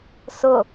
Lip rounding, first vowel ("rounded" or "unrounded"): rounded